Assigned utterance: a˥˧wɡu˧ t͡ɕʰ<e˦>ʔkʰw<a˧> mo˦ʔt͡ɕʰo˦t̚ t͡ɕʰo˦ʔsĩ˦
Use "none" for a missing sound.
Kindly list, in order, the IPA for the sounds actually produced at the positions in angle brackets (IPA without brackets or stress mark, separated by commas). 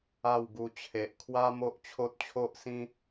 e˨, a˦